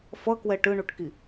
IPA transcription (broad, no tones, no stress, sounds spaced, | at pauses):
f ʌ k w ɛ ʈ ɯ ɳ u ʈ k i